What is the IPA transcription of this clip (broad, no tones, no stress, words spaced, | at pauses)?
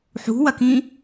ħṳwɐkĩ